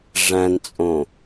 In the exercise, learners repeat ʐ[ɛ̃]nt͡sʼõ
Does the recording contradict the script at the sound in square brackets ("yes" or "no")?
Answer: yes